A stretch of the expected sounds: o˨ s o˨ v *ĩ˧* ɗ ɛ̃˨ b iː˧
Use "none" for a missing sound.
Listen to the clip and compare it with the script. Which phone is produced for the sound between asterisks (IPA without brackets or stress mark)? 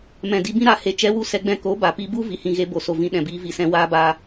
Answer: ĩ˧